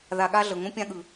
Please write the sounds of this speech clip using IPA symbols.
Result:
ð a˧ ɠ a˦ ɮ ɤ˨ ŋ õ˦ pʲ ã˦ ɠ ɯ˨

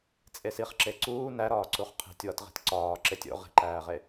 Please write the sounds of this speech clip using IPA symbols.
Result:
t͡sʼ e s i χ ǁ e ǀ uː n æ ɾ ɒː ǀ u χ qʰ i̤ tʲ w ɒ t ʁ i̤ t ǀ ɒː ǁ e tʲ o̰ ʁ i̤ ǃ æː ʁ e

